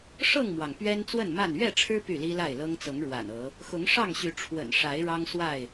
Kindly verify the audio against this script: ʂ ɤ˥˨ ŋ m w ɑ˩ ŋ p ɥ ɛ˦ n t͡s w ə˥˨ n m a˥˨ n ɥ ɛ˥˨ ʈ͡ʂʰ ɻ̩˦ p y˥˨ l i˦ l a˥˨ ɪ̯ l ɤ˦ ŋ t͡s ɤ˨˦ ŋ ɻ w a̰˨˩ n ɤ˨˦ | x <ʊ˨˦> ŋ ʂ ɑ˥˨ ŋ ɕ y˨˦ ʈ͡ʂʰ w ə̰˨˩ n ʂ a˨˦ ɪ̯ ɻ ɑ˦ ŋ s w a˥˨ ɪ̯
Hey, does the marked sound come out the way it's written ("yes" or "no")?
yes